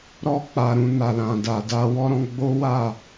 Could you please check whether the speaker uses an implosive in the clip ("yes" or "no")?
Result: no